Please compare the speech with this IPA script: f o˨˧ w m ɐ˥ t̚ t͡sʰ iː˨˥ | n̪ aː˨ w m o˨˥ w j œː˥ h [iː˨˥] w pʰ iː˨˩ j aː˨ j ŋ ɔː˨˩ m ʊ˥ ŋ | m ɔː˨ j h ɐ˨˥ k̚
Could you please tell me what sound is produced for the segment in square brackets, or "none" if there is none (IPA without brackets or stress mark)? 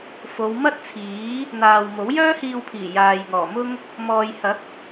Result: iː˧